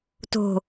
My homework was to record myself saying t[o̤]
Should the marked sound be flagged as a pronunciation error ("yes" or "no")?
no